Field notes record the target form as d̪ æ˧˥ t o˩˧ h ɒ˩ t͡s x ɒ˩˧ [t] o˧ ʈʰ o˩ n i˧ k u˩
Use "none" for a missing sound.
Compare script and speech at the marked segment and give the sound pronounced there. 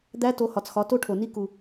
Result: t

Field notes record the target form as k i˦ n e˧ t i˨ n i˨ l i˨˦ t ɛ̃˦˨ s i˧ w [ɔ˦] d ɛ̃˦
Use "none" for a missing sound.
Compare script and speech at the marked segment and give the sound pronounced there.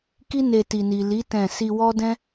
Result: ɔ˦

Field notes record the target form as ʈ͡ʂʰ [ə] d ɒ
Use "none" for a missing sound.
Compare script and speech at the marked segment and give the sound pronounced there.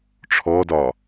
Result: ɔ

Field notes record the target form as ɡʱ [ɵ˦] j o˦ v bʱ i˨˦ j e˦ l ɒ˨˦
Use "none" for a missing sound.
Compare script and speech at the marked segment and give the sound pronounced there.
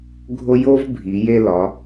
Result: o˦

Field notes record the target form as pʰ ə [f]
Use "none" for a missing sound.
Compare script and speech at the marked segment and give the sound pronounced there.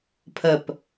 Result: p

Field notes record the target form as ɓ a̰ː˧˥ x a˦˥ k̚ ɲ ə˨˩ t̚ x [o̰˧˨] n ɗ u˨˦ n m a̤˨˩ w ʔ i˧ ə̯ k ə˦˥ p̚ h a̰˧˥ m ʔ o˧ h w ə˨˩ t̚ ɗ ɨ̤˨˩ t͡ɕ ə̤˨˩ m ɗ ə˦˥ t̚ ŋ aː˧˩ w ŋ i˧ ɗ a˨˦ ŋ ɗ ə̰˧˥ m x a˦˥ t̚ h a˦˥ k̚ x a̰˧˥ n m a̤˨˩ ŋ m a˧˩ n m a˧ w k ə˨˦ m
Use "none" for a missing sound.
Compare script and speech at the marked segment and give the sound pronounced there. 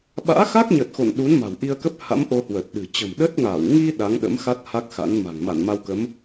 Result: o̰˧˨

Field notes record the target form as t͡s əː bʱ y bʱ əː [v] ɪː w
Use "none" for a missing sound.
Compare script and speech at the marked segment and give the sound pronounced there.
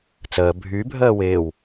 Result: w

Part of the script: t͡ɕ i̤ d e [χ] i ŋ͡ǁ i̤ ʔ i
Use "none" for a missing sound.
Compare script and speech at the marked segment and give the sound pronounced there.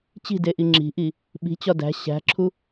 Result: ʔ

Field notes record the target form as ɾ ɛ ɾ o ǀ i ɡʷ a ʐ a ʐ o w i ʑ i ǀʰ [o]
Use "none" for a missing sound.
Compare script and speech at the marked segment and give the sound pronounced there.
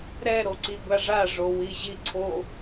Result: o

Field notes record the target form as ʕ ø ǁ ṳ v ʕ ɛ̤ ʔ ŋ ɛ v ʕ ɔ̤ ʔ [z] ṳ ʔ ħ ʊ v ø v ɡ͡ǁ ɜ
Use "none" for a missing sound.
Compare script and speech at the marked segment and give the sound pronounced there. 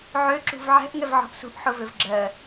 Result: s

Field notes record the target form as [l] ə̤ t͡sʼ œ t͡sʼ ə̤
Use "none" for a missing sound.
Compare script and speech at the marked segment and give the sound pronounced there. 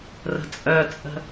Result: r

